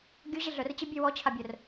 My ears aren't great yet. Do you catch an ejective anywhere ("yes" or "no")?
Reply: no